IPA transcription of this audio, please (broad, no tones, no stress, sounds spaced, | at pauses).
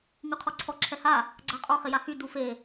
ŋ ʉ qʰ ɔ ǀʰ ɔ ǁʰ ɛ h a | ɡ͡ǀ a qʼ ɔ χ ɪ j a h y d u f e